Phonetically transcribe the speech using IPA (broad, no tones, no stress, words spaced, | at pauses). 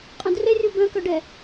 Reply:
qʼœ̃drerʲu bœ̃kœɖɛ